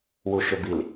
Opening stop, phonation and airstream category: plain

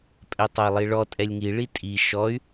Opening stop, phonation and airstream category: ejective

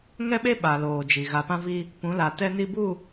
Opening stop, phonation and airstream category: implosive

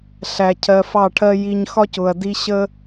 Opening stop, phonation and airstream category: aspirated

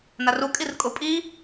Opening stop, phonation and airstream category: ejective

